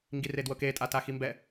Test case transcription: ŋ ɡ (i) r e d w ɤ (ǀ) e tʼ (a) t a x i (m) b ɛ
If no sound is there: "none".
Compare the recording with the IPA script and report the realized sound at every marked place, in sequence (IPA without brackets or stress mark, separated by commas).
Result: i, k, a, m